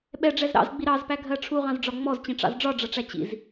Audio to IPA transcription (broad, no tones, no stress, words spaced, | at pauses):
ɓɛɖ͡ʐɛz ɾɑ̰zɡ͡bi ɾɑzpæɡʱɜ ʈ͡ʂʰuʁɑ̃zɖ͡ʐɒ ŋ͡mɔzt͡ɕĩʈ͡ʂɑ̰z ɖ͡ʐɒɖ͡ʐʌʈ͡ʂæ t͡ɕḭz